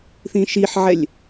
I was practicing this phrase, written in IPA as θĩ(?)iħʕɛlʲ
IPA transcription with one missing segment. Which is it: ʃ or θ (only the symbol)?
ʃ